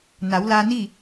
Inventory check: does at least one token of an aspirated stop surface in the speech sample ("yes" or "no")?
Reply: no